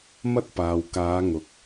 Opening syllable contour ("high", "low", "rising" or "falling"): high